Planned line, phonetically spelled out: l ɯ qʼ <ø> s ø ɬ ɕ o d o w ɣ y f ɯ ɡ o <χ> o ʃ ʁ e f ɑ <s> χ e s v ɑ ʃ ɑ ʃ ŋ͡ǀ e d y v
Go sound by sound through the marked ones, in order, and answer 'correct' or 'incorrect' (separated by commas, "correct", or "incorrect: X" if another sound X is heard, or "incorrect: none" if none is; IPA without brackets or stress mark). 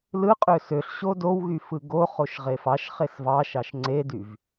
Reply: correct, correct, incorrect: ʃ